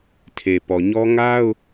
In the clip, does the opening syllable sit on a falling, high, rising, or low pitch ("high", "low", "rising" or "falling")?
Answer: low